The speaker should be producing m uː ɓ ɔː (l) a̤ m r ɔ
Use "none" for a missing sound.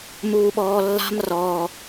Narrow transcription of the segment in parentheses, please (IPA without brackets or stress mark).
lː